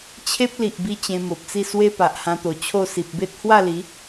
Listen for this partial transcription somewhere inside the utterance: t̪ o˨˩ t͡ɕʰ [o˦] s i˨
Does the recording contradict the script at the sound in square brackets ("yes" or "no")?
yes